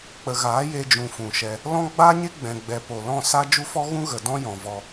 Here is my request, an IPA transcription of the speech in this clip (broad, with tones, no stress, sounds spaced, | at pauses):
k͡p ə˨ ɣ aː˨˦ j e˧ d͡ʒ ũ˨ f ũ˨ ʃ ɛ˧ | l ɔ̃˦ ɡ͡b aː˦ ɲ e˦ ɡ͡b ɛ̃˨ ɡ͡b ɛ˨ p o˨ l ɔ̃˦˨ s a˦ d͡ʒ u˧ f ɔ˧ ɣ ũ˧ ɣ ə˨ d ɔ̃˦ j ɔ̃˨ v ɔ˧